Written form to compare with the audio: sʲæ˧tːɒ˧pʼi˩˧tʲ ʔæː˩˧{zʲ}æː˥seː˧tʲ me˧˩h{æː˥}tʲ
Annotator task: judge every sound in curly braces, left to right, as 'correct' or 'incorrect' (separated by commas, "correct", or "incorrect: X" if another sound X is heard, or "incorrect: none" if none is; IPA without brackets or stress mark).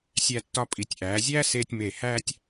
correct, correct